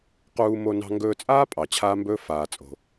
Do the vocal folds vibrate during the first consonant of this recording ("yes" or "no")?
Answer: no